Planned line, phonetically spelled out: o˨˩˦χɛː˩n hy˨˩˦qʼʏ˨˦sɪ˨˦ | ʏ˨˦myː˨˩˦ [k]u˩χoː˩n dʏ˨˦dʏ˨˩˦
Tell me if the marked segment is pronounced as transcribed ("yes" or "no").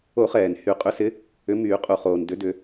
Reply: no